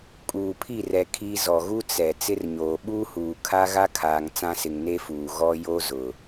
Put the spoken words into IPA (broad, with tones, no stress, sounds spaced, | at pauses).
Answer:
kʼ uː˨ pʰ i˦˨ r ɛ˨ kʰ i˦ z ɔ˨ ɣ u˦ t͡s ɛ˨ t͡s ɪ˦ r ɲ oː˨ ɓ uː˦ h uː˨ kʰ a˦ ɣ a˦ kʰ aː˨ ŋ t͡s ã˦ s ɪ˨ ŋ n e˦ f uː˨ ɣ ɔ˦ j o˦ z ʊ˨